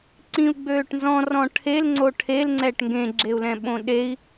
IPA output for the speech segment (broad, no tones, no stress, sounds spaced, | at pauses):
ǀ ĩ u̯ ɡ͡b øː ʈ n z ɔ̃ r ɔ̃ ʈʰ e l ŋ͡ǀ o ʈʰ e l ŋ͡ǀ ɛ ʈ ŋ ɡ ẽ ɡ͡ǁ e u̯ l ɛ̃ ɓ õ ɗ e i̯